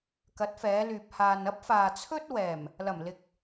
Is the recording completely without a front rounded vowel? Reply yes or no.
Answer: no